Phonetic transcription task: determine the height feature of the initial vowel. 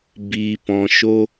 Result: high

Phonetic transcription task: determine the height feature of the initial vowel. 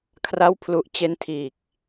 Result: low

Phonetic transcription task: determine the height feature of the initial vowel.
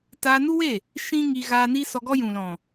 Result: low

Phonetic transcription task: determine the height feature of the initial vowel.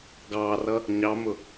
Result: low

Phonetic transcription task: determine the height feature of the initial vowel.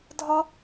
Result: low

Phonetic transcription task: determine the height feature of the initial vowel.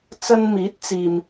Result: low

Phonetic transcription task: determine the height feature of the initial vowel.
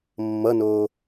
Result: mid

